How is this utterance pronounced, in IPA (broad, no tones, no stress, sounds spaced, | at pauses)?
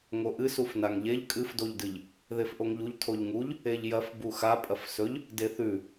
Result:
ŋ o ʔ ɨ s u f n a ŋ ʎ e ʎ kʼ ɨ f d o ʎ d ɨ ʎ | ð e f ʔ o ŋ ʎ u ʎ tʰ o ʎ ŋ u ʎ | e ʎ j ɐ f b u x a pʼ ɐ f s ɵ ʎ | d e θ ʉ